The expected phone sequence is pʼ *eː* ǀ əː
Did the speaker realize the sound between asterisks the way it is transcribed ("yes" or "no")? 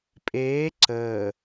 yes